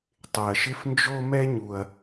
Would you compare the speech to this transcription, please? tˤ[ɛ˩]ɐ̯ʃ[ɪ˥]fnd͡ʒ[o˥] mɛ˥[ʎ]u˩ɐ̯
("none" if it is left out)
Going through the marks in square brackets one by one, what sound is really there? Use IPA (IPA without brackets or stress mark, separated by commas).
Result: ɪ˩, ɪ˥, o˥, ɲ